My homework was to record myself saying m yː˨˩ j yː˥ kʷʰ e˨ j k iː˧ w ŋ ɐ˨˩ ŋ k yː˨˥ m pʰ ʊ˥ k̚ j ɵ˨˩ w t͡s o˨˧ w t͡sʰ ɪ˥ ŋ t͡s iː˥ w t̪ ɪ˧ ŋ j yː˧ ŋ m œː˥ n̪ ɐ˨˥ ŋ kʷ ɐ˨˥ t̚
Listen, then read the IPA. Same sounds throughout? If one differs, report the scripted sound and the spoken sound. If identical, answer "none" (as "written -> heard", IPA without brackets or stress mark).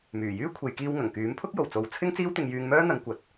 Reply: ɵ˨˩ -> o˨˩